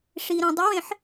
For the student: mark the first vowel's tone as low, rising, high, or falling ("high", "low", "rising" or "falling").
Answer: low